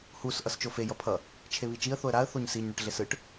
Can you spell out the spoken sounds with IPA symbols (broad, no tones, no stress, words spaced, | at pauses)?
hus ʔʌst͡ʃofe jʌpʰʌ | t͡ʃʰeβit͡ʃiə̯ θoə̯ɾaə̯ θoɲsiɲ ɳʌʈɮesɯʈ